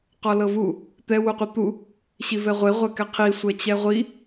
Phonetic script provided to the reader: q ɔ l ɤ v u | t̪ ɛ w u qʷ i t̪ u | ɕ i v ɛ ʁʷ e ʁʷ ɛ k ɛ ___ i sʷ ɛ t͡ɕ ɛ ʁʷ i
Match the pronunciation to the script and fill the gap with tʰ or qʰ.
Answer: qʰ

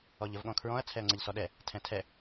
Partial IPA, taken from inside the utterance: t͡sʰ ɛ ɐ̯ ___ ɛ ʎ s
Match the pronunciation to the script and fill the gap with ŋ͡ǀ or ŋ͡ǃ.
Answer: ŋ͡ǀ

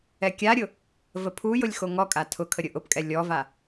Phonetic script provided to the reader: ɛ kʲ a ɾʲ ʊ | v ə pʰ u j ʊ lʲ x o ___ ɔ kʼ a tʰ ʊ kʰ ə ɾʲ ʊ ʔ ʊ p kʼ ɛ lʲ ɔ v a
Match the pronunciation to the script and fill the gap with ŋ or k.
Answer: ŋ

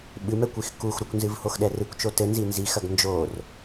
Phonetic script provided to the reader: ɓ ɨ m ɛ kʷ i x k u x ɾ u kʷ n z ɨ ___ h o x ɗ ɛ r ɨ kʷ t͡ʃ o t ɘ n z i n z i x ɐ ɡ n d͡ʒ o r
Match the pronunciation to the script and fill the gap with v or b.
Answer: v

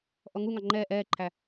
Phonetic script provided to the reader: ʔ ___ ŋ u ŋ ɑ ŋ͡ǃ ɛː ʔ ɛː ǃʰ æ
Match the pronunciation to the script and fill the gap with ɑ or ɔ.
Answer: ɔ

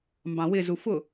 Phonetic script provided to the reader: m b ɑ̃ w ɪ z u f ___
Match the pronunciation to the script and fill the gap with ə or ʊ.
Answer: ʊ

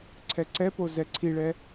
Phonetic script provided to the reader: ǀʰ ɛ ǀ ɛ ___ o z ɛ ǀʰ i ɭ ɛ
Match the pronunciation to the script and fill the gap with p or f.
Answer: p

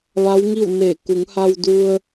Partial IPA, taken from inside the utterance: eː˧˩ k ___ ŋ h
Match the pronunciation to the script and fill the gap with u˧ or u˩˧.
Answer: u˩˧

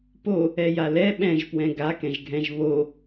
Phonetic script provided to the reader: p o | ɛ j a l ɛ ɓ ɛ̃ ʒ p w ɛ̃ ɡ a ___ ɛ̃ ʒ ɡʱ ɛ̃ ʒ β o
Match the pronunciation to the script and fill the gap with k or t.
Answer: k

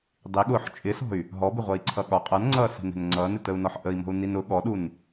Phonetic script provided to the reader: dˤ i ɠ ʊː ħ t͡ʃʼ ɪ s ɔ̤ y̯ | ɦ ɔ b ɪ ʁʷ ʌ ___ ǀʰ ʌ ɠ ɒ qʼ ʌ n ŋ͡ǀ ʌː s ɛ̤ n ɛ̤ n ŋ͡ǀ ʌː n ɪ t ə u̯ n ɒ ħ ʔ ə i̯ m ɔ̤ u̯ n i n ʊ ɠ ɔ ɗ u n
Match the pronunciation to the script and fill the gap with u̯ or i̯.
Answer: i̯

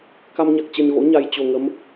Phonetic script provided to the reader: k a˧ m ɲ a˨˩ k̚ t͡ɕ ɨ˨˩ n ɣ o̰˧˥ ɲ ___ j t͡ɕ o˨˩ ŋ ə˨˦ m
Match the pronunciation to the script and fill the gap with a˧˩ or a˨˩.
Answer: a˨˩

